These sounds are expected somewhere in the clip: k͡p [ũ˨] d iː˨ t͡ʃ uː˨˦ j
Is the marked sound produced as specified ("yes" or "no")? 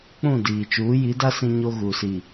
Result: no